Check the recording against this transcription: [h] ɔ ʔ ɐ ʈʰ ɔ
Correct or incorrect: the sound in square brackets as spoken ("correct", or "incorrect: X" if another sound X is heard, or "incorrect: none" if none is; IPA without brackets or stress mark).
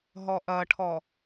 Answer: incorrect: ɦ